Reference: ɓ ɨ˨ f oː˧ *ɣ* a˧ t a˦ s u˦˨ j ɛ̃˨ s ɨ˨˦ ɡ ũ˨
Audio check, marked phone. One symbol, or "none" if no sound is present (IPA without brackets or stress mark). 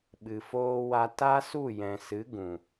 w